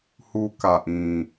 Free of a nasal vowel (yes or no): no